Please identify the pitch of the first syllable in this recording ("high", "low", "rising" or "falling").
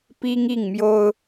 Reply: high